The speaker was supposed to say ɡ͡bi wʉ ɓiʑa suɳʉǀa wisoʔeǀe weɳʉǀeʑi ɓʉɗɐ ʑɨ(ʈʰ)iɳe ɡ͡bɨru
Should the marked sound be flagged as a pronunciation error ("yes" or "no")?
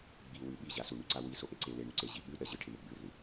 no